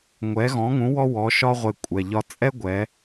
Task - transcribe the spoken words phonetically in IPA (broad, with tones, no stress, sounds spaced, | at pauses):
ŋʷ ɛ˩˧ ɣ ɔ̃˩˧ ŋ ũ˩˧ w ɔ˧ w ɔ˩˧ ʃ ɒ˧ ʁʷ e˩ kʷʼ ɛ˩ ʎ ɒ˧ t͡sʼ ɛ˥ ɡʷ ɛ˩˧